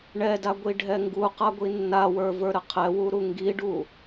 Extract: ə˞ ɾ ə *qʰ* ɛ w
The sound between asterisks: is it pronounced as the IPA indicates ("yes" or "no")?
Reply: yes